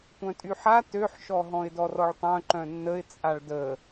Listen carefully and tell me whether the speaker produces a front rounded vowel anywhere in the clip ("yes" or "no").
yes